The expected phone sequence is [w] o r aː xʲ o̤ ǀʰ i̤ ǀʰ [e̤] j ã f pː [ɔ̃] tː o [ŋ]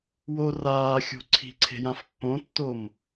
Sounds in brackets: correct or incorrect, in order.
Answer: correct, correct, incorrect: õ, incorrect: m

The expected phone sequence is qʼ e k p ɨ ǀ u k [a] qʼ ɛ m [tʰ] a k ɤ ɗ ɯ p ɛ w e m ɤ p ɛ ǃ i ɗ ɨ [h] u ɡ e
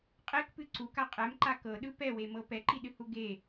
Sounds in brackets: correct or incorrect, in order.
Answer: correct, incorrect: ǃ, correct

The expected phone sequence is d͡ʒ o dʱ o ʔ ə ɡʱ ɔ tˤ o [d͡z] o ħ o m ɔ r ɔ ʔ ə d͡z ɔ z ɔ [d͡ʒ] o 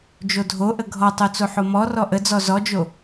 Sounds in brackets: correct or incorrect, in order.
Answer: incorrect: t͡s, correct

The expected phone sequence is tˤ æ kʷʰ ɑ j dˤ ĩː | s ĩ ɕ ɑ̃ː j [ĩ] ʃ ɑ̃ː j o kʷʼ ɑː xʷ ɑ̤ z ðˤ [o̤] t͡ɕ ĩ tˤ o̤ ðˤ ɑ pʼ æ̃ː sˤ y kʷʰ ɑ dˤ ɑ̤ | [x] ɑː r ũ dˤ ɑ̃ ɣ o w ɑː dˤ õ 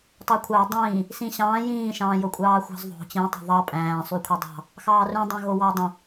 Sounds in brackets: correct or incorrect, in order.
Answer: incorrect: ĩː, correct, correct

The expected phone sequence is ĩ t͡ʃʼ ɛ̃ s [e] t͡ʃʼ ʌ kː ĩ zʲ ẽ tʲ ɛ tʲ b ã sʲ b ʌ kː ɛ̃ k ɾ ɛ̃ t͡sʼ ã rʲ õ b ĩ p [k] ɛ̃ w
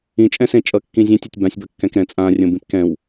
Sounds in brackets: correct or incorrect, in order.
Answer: incorrect: ẽ, correct

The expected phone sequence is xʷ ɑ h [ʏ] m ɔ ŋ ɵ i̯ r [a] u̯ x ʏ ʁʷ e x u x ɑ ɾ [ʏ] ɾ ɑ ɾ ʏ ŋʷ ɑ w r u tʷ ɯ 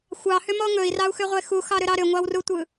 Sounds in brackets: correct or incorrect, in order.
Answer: correct, incorrect: ɑ, correct

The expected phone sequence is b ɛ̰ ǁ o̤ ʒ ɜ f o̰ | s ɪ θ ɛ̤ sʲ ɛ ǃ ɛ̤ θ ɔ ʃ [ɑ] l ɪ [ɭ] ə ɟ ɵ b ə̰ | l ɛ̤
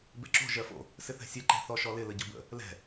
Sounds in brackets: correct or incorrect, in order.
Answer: incorrect: ɔ, incorrect: l

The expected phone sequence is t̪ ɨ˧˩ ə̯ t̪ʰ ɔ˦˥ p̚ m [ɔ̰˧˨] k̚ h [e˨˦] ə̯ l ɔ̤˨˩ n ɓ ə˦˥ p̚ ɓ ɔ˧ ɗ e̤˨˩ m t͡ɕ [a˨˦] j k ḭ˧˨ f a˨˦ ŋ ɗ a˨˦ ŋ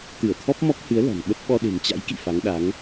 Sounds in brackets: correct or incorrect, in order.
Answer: incorrect: ɔ˦˥, incorrect: ɨ˨˦, incorrect: a̰˧˥

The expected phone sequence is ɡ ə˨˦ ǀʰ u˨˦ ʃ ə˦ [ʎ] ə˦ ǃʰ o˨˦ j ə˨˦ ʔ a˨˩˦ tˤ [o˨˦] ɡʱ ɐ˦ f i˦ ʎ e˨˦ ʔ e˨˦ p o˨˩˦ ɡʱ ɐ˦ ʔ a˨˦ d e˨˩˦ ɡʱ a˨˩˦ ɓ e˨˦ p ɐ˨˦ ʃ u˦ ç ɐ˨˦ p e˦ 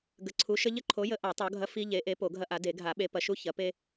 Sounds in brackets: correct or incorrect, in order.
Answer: correct, correct

